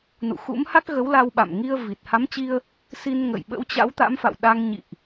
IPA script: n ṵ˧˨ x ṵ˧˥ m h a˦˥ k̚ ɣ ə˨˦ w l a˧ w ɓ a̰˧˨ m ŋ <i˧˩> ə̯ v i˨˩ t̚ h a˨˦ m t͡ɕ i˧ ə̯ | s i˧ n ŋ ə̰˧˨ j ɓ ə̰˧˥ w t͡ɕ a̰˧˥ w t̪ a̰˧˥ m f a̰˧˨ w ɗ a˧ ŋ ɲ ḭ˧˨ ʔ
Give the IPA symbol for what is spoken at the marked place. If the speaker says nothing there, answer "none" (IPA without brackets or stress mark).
i˧